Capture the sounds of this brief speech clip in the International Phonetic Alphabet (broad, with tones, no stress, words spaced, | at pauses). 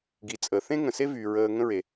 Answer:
ɡi˨t͡sʼəː˨ θẽ˦ŋə̃˨se˦vyː˨ ɹəː˧ ŋə̃˧ɹe˨